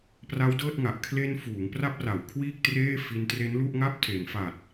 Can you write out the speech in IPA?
p r a˦˥ w d ɤː˥˩ t̚ ŋ a˨˩ ʔ kʰ l e˧ n f uː˩˦ ŋ p r a˦˥ p̚ r a˩˦ w kʰ w iː˥˩ k̚ t r eː˥˩ f i˧ n t r e˦˥ n l u˥˩ ʔ ŋ a˦˥ p̚ tʰ e˩˦ n f a˨˩ t̚

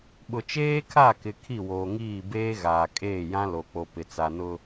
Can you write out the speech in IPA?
ɓ ʊ˨ t͡ʃ eː˦ kʰ a˦˨ k ɪ˨ kʰ i˦˨ w oː˨ ŋ iː˦˨ b eː˦ ɣ aː˨ kʼ eː˦˨ j ã˦ l o˨ k͡p o˨ p ɪ˨ t͡s a˨ n ʊ˨

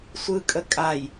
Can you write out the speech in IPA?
sʷ ɯ kʼ ə kʼ a j

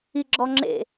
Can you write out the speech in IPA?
i ɡ͡ǁ ɔ ŋ͡ǁ ḛ

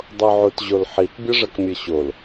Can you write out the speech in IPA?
dˤ o ʕ u t ʑ o l ħ i t bʲ ʌ ʐ ʌ k mʲ ɯ ɕ o l

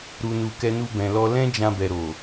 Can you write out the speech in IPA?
ɾ u˨ n u˨ k ɛ˧ n u˧ b ɛ̃˨ l ɔ˧ l ɛ̃˦ d͡ʒ ã˧ b ɛ˨ ɾ o˨

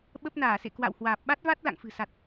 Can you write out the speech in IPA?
ɓ ə˦˥ p̚ n aː˧˩ s ḛ˧˨ k w a̰˧˨ w h w aː˨˩ p̚ ɓ a˦˥ t̚ v a˦˥ t̚ l a̰˧˨ ŋ f ɨ̤˨˩ s a˨˩ t̚

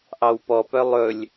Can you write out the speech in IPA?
ʔ ɑ w p ɔ p œ lˠ ɵ lʲ

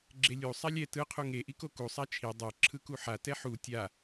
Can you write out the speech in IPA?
ɡ͡ǁ e lʲ u sˤ a lʲ ɛ t ɯ qʰ u ŋ e ʔ i k o k u sˤ a t͡ʃʰ i dˤ ɤ ǁʰ ɯ k u ħ a t ɛ ħ u tʲ a

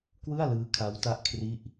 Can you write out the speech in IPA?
k w ɯ˥˩ a̯ l ɯː˦˥ kʰ a˦˥ w t a˦˥ ʔ kʰ r i˥˩ ʔ

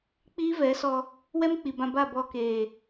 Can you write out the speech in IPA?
k͡p i˦ v ɛ˨˦ s ɔ˧ | w ɛ˦ m k͡p i˨ b ã˧ b a˦˨ b ɔ˧ k eː˨

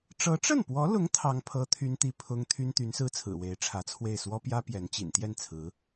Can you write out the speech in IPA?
ʈ͡ʂ ɤ˧˥ ʈ͡ʂ ə˥˩ n p w ɔ˧˥ l ʊ˧˥ ŋ t̪ʰ ɑ˥ ŋ pʰ ɤ˥ t̪ʰ y˥ n t̪ i˥˩ pʰ ʊ˥ ŋ t̪ʰ y˥ n t̪ y˧˥ n s ɹ̩˥ t͡sʰ ɹ̩˨˩ w e˧˥ ɪ̯ ʈ͡ʂʰ ä˧˥ t͡sʰ w e˥˩ ɪ̯ s w ɔ˥ p j ä˥ p j ɛ˧˥ n t͡ɕ ḭ˨˩ n t̪ j ɛ˥˩ n t͡sʰ ɹ̩˧˥

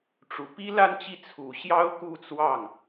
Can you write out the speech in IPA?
ʈ͡ʂ u˨˩ p i˥ l a˥˧ n t͡ɕ i˥˩ t͡sʰ u˨˩ ɕ j ɑ˥ ʊ̯ k u˥˧ t͡s w ɑ˥˩ ŋ

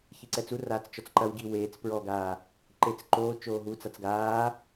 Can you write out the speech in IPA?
ç i ǀ ɛ t͡s u r aː t͡s t͡ʃ ɔ t͡s ǃ ɐ w ɟ i w eː t͡s p ɹ ɔ ɡ aː | ǃ e t͡s ǃ oː t͡ʃ oː ɦ u t͡s a t͡s ɡ aː

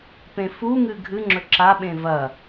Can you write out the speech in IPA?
p ẽ f u ŋ ɨ ɡʱ ɨ ŋ͡ǁ ɵ ǁ a ɓ ẽ v ɐ

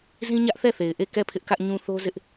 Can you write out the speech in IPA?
z ĩ˦ ɲ ä˦ ʔ θ ɛ˦˨ θ e˨ ɪ̯ ʔ e˦˨ k ɛ˦˨ pʰ ɪ˦ ʔ k ä˦ ʔ ɲ ũ˦ θ o˦ z ɪ˦ ʔ

